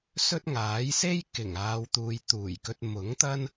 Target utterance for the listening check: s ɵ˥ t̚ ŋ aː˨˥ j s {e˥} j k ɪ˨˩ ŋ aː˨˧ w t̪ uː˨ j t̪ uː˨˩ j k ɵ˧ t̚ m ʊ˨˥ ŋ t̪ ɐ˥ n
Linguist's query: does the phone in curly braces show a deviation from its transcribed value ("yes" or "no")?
no